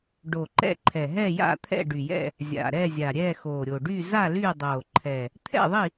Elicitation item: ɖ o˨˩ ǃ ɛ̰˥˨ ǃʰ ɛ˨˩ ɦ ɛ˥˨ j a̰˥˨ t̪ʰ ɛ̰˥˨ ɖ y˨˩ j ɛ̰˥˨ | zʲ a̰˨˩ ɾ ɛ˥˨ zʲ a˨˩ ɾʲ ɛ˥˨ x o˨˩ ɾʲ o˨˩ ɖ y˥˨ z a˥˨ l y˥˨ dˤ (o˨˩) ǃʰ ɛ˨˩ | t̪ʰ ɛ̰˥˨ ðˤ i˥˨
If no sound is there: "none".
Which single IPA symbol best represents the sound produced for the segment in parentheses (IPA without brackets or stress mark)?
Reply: o˨˩